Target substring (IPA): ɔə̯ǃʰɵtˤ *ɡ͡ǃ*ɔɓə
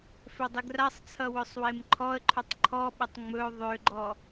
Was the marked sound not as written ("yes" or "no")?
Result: yes